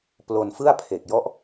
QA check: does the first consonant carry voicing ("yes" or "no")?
no